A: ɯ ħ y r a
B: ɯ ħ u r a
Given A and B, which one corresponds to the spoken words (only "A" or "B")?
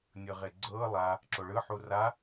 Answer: B